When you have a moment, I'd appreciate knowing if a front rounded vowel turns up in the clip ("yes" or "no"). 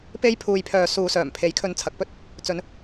yes